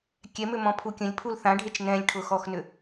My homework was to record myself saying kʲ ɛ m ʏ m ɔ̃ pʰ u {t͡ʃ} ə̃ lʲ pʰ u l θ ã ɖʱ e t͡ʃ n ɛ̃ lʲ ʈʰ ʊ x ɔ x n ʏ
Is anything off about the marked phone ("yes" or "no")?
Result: yes